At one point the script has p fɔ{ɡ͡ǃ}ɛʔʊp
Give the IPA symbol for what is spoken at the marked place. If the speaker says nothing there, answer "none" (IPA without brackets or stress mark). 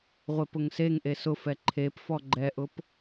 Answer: ɡ͡ǃ